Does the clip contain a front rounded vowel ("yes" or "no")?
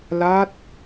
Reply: no